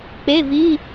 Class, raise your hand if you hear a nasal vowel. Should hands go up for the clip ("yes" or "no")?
no